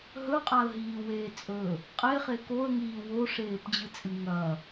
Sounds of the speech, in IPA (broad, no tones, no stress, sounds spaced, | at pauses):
ɦ ɵ qʼ a ə̯ ɦ iː w eː t͡sʼ ɵ | qʼ e χ e k o ə̯ ŋ iː w o ʂ eː p d͡ʑ ɨ t͡sʼ ɨ ŋ ɐ